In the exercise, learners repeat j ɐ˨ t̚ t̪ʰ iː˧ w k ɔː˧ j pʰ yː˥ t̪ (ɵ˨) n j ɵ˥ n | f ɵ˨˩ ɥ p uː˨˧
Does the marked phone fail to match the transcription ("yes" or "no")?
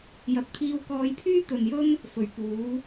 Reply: no